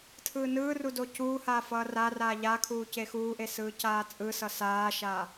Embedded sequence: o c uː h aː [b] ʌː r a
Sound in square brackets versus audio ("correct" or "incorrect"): incorrect